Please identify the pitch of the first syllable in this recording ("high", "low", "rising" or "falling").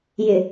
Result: low